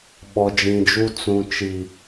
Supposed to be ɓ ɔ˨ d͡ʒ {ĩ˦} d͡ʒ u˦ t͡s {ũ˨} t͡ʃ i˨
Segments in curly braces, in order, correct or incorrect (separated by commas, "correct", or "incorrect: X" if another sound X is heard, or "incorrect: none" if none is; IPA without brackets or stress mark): incorrect: ĩ˨, correct